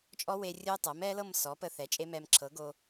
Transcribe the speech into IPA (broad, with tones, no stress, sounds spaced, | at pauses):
t͡ʃʼ ɔ˦˥ w e˧ rʲ o˦˥ y̯ tˤ ɤ˩˥ m ɛ˦˥ l ɤ˥˧ m s ɔ˩˥ p ə˧ θ ɛ˩˥ t͡ʃʼ e˦˥ m ɛ˧ m ǁʰ ɤ˩˥ ɡ o˧